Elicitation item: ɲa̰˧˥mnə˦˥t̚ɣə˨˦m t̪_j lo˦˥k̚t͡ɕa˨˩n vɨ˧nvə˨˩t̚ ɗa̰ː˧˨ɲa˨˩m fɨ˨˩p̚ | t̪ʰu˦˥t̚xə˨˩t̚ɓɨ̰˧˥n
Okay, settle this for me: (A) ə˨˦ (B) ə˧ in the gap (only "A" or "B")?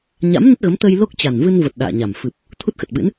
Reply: B